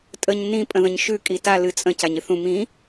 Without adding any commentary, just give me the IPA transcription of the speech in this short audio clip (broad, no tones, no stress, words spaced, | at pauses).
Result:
tʼəɲ nĩ pʼə̃ðə̃ɲʃʉ kʼita lɨt͡sʼə̃ caɲɨθũ mĩ